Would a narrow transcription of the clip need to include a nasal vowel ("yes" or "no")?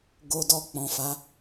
yes